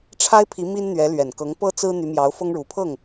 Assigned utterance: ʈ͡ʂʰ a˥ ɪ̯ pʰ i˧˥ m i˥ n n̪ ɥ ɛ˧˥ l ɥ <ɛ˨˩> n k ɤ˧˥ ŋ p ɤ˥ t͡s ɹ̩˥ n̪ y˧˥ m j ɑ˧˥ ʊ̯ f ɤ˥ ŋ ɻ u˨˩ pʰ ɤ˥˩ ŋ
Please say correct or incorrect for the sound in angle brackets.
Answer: correct